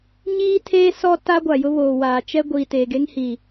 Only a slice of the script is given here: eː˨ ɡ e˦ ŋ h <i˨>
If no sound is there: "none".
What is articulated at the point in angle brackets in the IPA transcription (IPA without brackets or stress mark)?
i˨